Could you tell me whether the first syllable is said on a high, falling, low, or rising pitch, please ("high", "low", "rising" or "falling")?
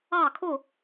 falling